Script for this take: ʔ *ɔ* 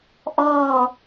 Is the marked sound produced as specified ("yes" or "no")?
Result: yes